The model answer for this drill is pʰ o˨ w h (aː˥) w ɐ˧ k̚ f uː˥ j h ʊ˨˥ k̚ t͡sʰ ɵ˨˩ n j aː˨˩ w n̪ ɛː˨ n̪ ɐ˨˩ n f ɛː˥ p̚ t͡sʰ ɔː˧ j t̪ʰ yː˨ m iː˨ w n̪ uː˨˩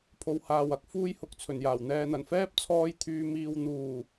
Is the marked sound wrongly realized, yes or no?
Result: yes